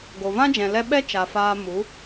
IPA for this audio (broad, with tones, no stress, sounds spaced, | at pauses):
ɡ o˨ v ã˦ d͡ʒ ɛ̃˨ l ɛ˧ ɓ ɛ˦ t͡ʃ a˨ f aː˧ m u˨˦